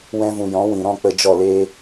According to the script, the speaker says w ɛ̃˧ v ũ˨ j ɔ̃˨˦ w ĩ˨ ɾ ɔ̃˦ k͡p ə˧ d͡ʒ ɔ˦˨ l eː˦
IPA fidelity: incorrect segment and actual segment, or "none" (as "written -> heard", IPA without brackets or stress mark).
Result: none